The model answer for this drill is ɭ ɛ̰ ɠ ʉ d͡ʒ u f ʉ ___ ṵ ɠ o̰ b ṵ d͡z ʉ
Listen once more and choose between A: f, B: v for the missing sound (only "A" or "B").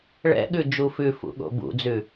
A